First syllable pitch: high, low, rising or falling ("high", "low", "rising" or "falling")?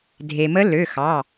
low